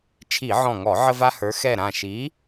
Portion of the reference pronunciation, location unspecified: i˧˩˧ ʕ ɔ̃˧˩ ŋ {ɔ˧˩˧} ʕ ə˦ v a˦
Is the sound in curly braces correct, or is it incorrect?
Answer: correct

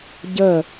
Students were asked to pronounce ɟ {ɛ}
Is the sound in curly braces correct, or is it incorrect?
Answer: incorrect: ə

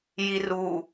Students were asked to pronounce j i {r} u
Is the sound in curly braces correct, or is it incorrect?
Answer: correct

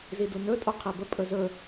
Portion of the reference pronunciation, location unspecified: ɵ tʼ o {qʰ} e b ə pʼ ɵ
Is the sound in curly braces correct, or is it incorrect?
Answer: correct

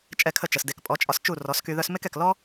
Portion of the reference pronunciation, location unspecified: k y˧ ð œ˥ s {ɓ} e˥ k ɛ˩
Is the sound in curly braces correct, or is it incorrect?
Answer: incorrect: m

